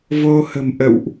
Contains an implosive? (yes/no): no